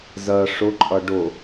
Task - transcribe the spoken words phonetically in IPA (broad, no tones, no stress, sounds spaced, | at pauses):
z ɜ ʂ ʊ ǃʼ ʌ ɖ ʊ